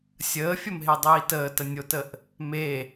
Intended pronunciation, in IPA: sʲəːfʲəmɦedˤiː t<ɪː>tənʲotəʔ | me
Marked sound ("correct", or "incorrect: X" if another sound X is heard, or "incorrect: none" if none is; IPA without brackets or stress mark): incorrect: əː